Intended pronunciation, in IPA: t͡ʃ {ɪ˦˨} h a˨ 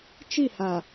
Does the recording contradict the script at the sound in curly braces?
yes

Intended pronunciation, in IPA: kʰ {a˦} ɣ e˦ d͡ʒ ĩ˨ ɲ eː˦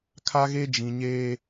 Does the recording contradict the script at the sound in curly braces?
no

